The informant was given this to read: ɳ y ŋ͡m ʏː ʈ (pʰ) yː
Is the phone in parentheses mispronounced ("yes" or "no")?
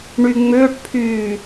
no